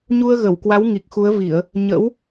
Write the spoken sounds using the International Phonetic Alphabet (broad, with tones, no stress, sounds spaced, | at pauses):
ɲ u˧ ə̯ ɣ ə˧˩ w k w a˨˦ w ŋ i˨˩ k̚ x u˨˦ ə̯ v i˧˩˨ ə̯ | ɲ ə̰˧˥ w